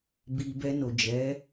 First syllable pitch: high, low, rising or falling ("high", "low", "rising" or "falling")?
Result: low